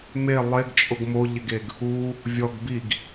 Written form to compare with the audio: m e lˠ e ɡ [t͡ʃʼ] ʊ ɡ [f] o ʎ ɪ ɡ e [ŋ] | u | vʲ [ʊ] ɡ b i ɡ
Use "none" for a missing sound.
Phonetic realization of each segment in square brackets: t͡ʃʼ, m, ɡ, ɔ

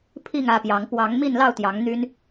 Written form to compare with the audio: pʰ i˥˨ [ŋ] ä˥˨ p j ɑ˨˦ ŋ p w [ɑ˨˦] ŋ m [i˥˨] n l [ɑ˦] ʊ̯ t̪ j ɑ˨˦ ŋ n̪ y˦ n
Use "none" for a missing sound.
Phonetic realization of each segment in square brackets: ŋ, ɑ˨˦, i˥˨, ɑ˥˨

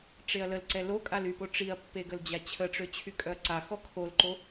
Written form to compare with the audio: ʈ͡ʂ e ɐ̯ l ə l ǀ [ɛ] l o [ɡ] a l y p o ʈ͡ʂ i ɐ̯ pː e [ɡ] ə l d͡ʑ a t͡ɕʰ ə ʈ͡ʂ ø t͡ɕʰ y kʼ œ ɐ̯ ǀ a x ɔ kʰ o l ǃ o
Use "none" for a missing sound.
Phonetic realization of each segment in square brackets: ɛ, kʼ, ɡ

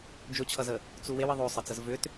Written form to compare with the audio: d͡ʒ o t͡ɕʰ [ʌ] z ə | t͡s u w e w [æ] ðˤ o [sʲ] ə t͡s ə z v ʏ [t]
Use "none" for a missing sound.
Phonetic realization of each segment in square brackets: ʌ, ə, sˤ, t

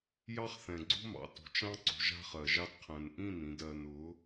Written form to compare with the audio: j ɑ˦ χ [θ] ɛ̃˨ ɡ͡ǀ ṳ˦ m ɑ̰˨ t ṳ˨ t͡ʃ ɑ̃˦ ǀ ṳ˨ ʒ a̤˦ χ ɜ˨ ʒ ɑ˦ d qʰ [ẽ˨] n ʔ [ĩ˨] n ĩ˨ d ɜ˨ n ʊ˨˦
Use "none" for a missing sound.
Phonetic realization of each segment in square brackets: θ, ɛ̃˨, ĩ˦˨

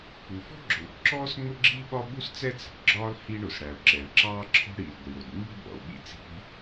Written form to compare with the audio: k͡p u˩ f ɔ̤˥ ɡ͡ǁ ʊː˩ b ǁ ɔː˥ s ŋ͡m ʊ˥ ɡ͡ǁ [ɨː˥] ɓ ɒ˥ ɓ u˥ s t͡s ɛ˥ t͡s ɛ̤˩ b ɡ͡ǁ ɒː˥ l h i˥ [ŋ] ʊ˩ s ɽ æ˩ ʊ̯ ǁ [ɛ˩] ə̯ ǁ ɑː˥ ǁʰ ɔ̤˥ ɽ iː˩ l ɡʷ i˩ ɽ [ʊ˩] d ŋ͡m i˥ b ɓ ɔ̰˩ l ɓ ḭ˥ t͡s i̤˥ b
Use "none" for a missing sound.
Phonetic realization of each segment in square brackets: iː˥, ɳ, ɛ˩, ʊ˩

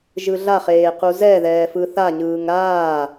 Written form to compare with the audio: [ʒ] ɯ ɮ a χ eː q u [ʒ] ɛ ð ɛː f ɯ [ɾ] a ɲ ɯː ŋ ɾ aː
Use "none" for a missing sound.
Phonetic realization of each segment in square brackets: ʒ, z, θ

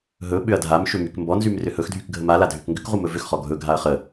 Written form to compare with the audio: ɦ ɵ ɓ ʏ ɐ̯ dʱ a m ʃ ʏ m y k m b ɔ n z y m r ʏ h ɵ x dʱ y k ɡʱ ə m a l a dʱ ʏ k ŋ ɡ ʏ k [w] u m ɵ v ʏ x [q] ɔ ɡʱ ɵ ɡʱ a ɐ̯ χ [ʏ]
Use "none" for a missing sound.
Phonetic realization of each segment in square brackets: ʁ, χ, ə

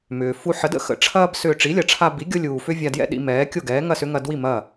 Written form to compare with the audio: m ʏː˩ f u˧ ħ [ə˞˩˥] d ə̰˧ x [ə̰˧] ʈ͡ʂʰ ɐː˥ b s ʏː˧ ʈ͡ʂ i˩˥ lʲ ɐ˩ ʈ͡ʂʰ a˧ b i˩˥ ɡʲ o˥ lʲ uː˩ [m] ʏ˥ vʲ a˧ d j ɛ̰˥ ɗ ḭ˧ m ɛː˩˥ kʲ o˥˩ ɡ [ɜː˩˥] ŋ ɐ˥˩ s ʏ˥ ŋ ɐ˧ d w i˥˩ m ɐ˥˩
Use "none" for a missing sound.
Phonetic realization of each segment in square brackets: ə˩˥, ə̰˧, f, ɛː˩˥

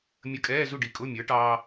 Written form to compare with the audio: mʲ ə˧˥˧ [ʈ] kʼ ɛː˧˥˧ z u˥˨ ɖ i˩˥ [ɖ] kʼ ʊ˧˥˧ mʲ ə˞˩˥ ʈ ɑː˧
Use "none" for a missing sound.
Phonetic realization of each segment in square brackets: none, none

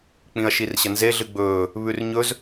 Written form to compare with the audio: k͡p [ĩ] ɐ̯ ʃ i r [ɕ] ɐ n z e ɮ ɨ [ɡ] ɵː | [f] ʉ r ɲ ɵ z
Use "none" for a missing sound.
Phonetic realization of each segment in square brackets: ĩ, ɕ, ɡ͡b, β

